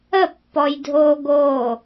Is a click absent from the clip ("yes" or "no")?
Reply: yes